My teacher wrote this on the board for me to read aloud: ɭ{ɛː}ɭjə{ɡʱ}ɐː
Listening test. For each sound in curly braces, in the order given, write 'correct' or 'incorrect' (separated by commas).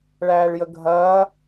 incorrect, correct